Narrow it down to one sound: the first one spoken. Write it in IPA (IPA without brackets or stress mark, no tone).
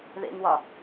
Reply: ð